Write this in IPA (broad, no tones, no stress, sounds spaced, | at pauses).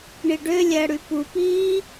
ɳ i ɖ ø lʲ æ ɽ y p u p iː